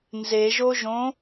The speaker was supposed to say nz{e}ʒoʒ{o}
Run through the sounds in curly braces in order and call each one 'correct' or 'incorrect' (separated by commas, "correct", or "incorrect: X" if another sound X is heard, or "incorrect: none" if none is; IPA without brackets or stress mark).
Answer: correct, incorrect: õ